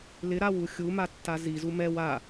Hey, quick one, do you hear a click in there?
no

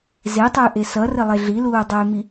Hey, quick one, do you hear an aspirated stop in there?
no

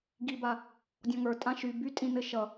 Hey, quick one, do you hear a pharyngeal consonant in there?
no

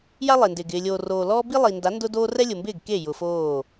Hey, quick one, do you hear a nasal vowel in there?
no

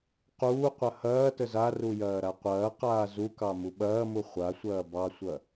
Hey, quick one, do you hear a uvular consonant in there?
yes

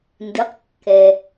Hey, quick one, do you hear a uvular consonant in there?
yes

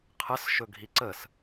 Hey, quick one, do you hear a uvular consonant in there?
yes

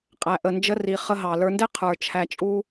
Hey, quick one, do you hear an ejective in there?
yes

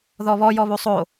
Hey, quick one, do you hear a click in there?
no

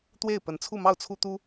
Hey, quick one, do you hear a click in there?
no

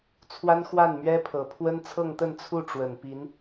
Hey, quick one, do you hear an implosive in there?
no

